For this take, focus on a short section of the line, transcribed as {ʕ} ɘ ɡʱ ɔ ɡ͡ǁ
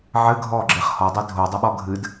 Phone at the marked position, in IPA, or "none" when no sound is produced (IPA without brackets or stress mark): ʕ